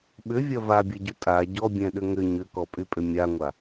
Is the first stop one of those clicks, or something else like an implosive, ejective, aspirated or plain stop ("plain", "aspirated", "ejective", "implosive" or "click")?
implosive